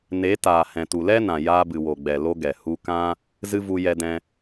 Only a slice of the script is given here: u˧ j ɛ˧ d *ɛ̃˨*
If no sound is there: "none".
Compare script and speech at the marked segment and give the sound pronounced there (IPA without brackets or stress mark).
ɛ̃˧